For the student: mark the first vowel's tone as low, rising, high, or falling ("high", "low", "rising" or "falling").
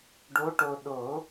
rising